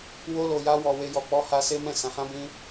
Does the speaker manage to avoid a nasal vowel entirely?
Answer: no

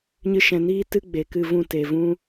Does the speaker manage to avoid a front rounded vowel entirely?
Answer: yes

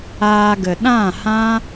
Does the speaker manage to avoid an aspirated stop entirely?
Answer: yes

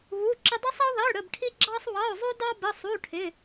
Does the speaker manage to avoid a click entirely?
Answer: no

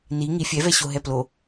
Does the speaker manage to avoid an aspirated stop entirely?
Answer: yes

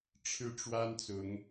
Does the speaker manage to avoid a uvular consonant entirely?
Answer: yes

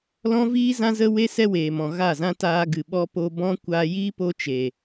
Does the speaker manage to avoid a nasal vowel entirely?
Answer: no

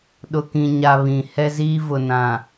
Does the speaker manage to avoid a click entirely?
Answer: yes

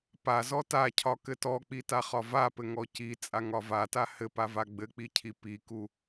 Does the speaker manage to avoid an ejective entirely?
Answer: no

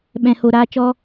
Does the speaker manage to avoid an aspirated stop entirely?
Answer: yes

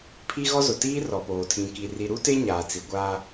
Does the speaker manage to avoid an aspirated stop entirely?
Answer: no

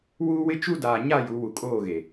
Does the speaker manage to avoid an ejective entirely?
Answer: no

